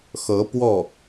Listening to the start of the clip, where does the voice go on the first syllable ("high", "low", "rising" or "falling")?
rising